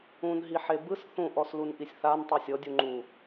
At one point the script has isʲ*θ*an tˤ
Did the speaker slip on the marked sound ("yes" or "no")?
no